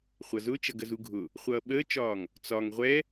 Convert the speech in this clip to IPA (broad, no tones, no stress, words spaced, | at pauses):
χʷʌzʊːt͡ʃʌɡ əzuɡʱʊ | χʷʌːɓəːt͡ʃɒːŋ | t͡sɒŋ ʁʷɛ